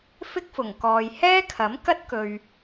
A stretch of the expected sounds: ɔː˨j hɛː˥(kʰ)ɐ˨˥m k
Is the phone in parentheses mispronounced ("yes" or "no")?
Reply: no